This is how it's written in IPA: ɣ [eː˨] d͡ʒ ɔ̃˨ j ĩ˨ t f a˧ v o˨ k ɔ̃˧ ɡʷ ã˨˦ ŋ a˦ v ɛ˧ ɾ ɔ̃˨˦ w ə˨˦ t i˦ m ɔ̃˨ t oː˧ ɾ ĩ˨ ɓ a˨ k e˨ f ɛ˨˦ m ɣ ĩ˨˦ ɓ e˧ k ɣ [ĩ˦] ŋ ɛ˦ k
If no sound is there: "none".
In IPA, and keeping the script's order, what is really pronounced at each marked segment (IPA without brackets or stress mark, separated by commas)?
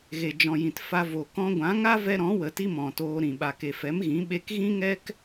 e˨, ĩ˦